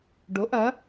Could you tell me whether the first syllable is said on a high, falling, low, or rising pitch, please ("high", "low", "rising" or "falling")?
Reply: rising